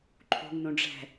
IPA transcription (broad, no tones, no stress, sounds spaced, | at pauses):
ǃʰ ṳ ŋ n ũ ɖ͡ʐ ɛ̤